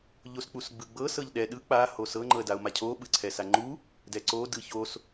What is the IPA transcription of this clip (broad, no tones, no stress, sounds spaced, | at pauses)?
ʎ o s k͡p u s ɡ͡b ɯ ɡ͡b ɤ s ɤ ʎ ɗ ɛ ɗ ɯ k͡p a h o s ɤ ŋ͡ǃ ɤ ə̯ d a ʊ̯ m a cʰ o ɓ ɯ ǀʰ ɛ s a ŋ͡ǃ u | d ɛ ǀ o d ɯ ç o s